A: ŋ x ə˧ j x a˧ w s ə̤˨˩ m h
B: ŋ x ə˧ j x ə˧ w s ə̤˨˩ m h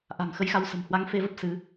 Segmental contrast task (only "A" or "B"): A